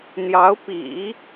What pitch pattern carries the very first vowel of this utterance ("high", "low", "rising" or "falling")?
rising